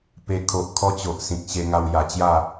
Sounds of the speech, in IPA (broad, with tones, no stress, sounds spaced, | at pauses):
p e˧ kʰ o˨ ʔ kʰ ɔ˦ t͡ɕ o˨ ʔ s ĩ˨ k̚ ɕ e˧ ŋ a˧ w j a˨˩ t͡ɕ j a˥˧